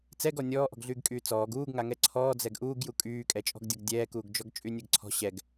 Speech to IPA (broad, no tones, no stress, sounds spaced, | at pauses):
t͡s ɛ ɡ ɔ nʲ ɔː ʔ ɔ̤ ɡ ɮ yː ɡ kʼ yː t͡s ɔː ɡ uː ɡ ŋ a ŋ ɛ ǀʰ ɔː d͡z ɛ ɡ ʔ uː ɡ j u kʼ yː kʼ ɛ t͡ʃʼ ɔ̤ ɡ dʲ ɔ ɡ dʲ ɛː k uː ɡ d͡ʒ ɔ ɡ t͡ʃʼ y nʲ ɛ ɡ ǀʰ ɔ̤ ɕ ɛ ɡ